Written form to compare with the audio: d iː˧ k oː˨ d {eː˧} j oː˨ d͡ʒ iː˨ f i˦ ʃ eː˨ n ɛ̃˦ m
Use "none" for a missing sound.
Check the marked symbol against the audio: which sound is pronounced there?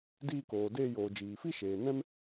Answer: eː˧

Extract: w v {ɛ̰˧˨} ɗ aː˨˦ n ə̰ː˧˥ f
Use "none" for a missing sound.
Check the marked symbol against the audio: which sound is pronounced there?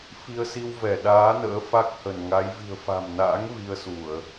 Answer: ɛ˧˩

